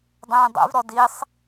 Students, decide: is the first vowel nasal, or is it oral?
nasal